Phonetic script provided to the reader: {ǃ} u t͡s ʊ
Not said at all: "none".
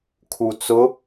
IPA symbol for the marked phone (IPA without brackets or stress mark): kʰ